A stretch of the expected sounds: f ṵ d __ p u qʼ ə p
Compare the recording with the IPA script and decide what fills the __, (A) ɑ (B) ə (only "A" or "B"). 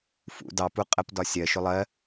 A